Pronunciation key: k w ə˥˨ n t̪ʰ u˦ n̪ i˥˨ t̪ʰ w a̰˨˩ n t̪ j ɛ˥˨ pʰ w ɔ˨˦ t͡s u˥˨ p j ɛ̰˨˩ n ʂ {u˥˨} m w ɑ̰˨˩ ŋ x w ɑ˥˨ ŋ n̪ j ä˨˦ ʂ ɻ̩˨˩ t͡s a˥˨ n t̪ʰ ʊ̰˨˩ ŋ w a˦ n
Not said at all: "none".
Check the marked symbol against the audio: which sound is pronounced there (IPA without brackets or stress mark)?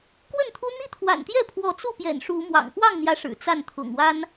u˨˦